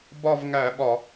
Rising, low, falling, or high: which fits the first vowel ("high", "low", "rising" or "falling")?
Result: falling